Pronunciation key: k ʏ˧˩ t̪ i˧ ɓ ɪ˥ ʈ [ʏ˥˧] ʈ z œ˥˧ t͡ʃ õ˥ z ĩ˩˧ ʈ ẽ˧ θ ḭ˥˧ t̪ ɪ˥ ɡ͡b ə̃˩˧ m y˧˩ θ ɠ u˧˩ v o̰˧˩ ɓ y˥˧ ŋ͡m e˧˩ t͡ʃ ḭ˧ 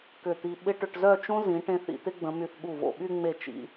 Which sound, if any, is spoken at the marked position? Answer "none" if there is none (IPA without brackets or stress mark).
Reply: ʏ˧